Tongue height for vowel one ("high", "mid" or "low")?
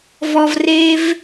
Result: mid